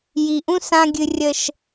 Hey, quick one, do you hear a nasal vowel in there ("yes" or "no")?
yes